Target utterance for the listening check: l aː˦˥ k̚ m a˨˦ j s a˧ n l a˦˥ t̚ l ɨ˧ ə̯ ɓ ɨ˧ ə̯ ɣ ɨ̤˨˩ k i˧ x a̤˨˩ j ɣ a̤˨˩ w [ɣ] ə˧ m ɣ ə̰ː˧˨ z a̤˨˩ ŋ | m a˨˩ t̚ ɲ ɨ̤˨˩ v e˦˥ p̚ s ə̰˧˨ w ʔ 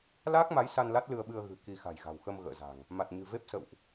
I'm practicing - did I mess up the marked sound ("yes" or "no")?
yes